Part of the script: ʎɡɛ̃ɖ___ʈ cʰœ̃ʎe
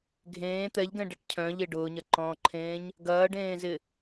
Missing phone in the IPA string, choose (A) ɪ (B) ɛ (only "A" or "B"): B